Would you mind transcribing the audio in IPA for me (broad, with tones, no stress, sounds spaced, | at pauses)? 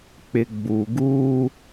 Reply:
k͡p ɪ˨ ɡ͡b u˨ ɡ uː˦